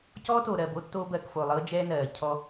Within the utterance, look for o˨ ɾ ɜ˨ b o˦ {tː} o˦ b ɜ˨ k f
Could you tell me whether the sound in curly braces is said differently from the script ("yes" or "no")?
no